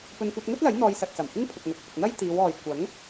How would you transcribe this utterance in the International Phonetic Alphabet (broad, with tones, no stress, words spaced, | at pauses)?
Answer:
pɵ˨nkʷɐ˧t̚ŋɵ˥t̚lɐ˨˥j n̪ɔː˧jsɐ˨t̚sɐ˨˩mhɪ˥ŋ pʰʊ˨k̚ŋɐ˨k̚hɪ˨k̚ n̪ɐ˥jt̪iː˨˧wɔː˨j kʷɐ˨˥ŋ